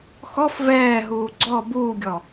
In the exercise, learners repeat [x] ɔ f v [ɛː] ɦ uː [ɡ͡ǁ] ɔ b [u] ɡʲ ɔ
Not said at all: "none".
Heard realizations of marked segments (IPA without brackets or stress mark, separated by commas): x, ɛː, ɡ͡ǀ, uː